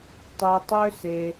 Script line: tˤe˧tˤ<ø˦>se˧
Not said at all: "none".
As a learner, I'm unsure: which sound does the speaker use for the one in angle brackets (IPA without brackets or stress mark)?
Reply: ø˦